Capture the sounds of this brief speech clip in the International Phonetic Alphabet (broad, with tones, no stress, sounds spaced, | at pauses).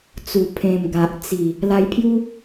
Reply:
t͡s u˨˩ pʰ ẽ˨˩ m ɡ a˨ ʔ t͡s i˨˩ | l a˧ j pʰ j u˦